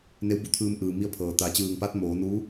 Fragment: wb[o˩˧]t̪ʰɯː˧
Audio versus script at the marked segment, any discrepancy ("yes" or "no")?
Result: yes